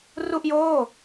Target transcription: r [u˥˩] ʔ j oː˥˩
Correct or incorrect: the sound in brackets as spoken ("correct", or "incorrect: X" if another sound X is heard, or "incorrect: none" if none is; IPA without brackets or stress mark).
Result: correct